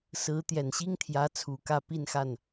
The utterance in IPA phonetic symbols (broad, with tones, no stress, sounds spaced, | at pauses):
s ɹ̩˧˥ t̪ j ɛ˨˩ n ɕ i˥ ŋ t̪ʰ j ä˧˥ t͡sʰ u˨˩ k ä˥˧ p i˥˧ n x a˥˩ n